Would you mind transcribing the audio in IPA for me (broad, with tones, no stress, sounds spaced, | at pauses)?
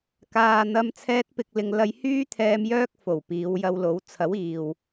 k aː˨ n̪ ɐ˧ m t͡sʰ ɛː˧ t̚ p ɪ˨ k̚ l ɪ˨ ŋ l ɐ˧ j h yː˥ t̪ʰ ɛː˧ m j œː˥ k̚ f o˨˩ w p iː˨˧ w j ɐ˧ w l o˨˥ w t͡sʰ ɐ˨˥ w iː˨ w